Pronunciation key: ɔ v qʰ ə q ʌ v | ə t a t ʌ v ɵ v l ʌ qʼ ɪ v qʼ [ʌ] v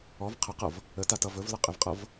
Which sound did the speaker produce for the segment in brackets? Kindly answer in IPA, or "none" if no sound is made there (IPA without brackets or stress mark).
ʌ